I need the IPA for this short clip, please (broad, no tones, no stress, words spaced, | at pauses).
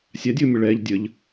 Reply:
sʲadʲʊːmʲʊ ɭɛːʎdʲəʎ